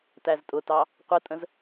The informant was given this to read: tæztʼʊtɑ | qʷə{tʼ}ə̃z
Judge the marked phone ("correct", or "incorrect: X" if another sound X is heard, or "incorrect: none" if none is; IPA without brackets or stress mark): correct